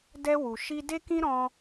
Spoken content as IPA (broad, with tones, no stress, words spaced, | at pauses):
dɛ˦ wu˧ ʃi˦ de˦kĩ˦ɾɔ̃˧